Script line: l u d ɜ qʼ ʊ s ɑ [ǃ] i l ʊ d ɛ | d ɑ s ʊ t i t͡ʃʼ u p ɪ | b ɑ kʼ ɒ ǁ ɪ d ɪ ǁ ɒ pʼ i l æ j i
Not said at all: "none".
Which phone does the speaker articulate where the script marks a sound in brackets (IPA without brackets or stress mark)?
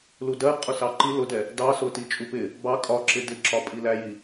ǃ